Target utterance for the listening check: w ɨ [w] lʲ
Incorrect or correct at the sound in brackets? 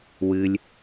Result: incorrect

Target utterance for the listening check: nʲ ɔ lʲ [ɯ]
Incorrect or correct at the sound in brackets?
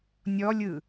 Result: correct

